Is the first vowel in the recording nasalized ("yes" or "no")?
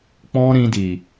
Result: yes